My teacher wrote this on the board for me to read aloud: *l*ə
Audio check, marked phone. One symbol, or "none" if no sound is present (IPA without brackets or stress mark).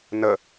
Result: n